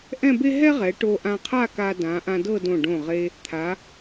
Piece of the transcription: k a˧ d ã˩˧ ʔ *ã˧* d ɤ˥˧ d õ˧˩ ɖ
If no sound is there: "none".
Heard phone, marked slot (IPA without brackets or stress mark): ã˧